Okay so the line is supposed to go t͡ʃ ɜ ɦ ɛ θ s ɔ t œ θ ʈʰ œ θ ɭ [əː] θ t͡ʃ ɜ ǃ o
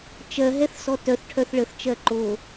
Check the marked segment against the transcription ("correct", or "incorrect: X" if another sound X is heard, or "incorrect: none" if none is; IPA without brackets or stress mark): incorrect: ə